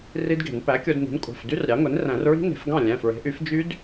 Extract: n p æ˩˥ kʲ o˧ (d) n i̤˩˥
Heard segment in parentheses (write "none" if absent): d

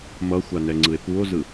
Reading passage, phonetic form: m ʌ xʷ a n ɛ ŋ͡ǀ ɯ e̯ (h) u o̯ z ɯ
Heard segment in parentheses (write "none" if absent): p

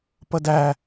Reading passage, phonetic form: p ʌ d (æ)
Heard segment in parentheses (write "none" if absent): æ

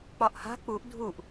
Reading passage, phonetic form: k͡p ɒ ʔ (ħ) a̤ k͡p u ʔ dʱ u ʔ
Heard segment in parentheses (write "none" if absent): h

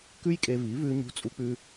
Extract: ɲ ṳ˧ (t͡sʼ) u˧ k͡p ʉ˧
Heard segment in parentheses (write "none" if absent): t͡sʼ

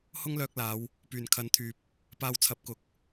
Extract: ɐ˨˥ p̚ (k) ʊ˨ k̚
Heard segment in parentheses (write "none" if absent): k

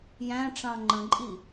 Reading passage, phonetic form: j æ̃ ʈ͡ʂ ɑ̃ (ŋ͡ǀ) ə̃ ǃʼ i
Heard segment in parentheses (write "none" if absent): ŋ͡ǃ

